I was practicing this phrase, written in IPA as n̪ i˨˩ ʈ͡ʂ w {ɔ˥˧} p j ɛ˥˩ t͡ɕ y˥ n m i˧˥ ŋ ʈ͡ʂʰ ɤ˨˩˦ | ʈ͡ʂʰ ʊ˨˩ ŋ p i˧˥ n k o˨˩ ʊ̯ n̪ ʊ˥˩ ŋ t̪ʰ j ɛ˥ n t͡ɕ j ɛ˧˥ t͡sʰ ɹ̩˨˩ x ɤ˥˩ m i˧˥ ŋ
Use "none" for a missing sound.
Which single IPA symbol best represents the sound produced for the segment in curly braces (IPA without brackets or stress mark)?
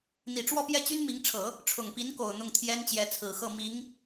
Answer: ɔ˥˧